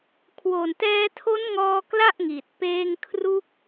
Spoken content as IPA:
kʰ w o˨˩ n t ɛː˧ tʰ o˦˥ n ŋ ɔː˧ k l a˥˩ ʔ ŋ i˨˩ t̚ p eː˧ ŋ kʰ r u˦˥ k̚

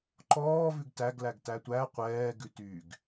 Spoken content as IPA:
ǃ ɔː v ʉ ɡ t æ ɡ l æ ɡ t æ tʷ æ qʷ ɛː ɡ ʉ t y ɡ

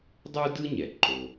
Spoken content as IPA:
dˤ u˥ d ɯ˥ ɲ ɛ˩ ǃ o˩

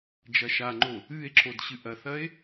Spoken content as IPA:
d͡ʒ ɐ ʃ a ŋ͡ǃ o | ɨ e̯ ǁ o d ɕ ɨ ʔ ɐ θ ɐ e̯

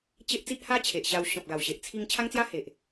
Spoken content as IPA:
t͡ɕ e˦ ʔ t͡s i˦ ʔ h a˦ t͡ɕʰ e˨ ʔ ɕ a˧ w ɕ ɔ̃˨ p̚ ɡ a˨˩ w ɕ e˨ ʔ t͡sʰ i˧ ŋ t͡ɕʰ a˦ ŋ t͡s j a˦ h e˨ ʔ

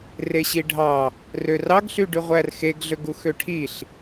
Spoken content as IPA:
r e ɕ i ɖʱ ɑ | r ø r ɑ ɡ ɬ y ɖ y ʁʷ æ r x e ɡ ɮ ø ɡ u x ø ʈʰ i ɬ

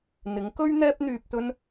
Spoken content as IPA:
n̪ ɪ˨˥ ŋ k ɵ˥ ɥ n̪ ɛː˥ p̚ n̪ yː˧ p̚ t̪ ɵ˥ n

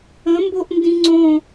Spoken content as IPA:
ə̃ m b o ʔ n d ĩ ŋ͡ǀ õ

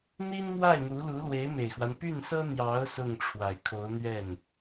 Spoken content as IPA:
n̪ i˥ n m w a˥˩ ɪ̯ n̪ u˧˥ l u˧˥ l w e˧˥ ɪ̯ m e˨˩ ɪ̯ x w a˦ n p y˥˩ n s ɤ˥ n̪ j ɑ˧˥ ʊ̯ s ʊ˥˩ ŋ ʈ͡ʂʰ w a˨˩ ɪ̯ kʰ o˧˥ ʊ̯ n̪ ɥ ɛ˥˩ n

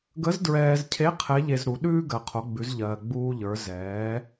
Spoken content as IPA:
ɡ ə˧˥ z d ɹ ɛː˧ z cʰ e˧˥ qʰ ɛ˧˥ ʎ e˧ z ɾ u˩˧ ɗ ʉː˥ ɡ ɜ˩ qʰ o˩˧ ɡ͡b ʉ˩˧ z ʎ ɜː˩ ɡ͡b uː˧ ʎ ə˞˩˧ z ɛː˩˧

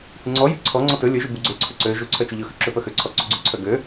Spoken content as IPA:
h ʉ ŋ͡ǀ ɔ j ʉ ǀʰ ɔ ŋ͡ǀ ɔ t ɵ lʲ ɵ ʒ ʉ b u ɡ͡ǀ ø ǀʰ ɵ ǀ ø ʒ u ǀʰ œ t͡ʃ ʉ ʎ ɵ x ʉ ǁ ø p œ x ø ǀʰ ɔ ǀ u ɡ͡ǀ ʉ ǀʰ œ ɡ ø

